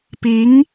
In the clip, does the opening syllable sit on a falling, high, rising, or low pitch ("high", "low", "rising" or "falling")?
rising